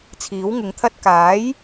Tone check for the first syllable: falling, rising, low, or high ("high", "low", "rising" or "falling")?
rising